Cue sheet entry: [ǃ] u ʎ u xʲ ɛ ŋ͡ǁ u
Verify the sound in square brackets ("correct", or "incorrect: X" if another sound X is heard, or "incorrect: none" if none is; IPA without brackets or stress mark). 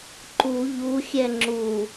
correct